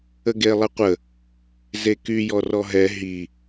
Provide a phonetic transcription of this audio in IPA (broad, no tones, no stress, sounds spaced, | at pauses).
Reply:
ə ɡ e lˠ ɛ qʷ ə | z e k y j ɔ r ɔ ɦ ɛ ɦ i